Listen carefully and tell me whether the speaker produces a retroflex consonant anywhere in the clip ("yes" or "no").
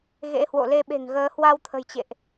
no